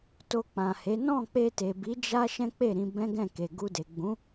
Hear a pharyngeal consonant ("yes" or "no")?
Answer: no